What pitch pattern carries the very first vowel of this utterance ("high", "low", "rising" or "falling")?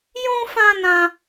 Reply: high